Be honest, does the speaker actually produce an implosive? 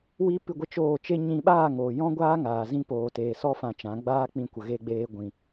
yes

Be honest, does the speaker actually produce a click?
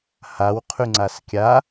yes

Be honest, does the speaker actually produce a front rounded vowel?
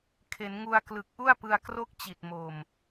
no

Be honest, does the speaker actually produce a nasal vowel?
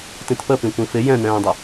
yes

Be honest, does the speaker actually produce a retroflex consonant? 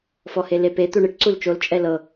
yes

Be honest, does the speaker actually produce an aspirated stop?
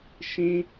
no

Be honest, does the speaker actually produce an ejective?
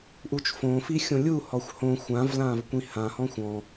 no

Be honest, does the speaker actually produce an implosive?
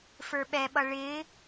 yes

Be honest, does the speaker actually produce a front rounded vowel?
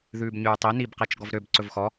yes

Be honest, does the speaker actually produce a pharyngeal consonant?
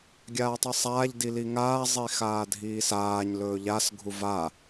no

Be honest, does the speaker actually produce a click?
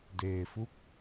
no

